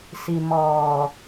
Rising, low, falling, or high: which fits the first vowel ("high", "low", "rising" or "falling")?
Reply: low